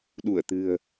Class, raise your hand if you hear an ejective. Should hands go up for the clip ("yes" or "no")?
no